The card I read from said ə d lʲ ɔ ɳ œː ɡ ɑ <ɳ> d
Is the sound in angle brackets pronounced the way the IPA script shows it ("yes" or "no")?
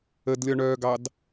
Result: no